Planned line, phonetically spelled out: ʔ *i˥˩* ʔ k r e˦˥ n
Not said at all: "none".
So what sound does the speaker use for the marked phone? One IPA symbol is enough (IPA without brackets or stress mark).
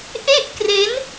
e˥˩